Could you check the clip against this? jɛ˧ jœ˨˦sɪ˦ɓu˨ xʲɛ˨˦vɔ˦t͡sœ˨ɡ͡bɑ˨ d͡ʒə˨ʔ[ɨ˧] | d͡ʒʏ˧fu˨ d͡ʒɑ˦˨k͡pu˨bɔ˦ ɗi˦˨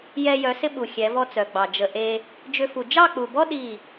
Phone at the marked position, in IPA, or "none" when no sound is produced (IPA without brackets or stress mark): e˧